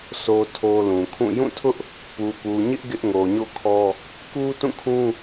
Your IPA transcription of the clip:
sʰ o˦ tʰ o˦ l ũ˨ kʰ ũ˦˨ j ũ˦˨ tʰ ʊ˦ ʔ | p u˨ p u˨ ɲ ɪ˦ ʔ ɡ ɪ˦ ʔ ŋ o˨ ɲ o̰˦˨ kʰ ɔ˦ | k u˦ t ũ˦˨ kʰ ũ˦

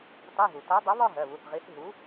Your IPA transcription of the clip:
t ɑ˧˥˧ ɦ u˩ t æ˨˥ dˤ ʌ˨˥ β ɒ˥˧ ɦ ɜ˩˧˩ β u˩˧˩ θ ʁ i˨˥ θ ɦ u˨˥

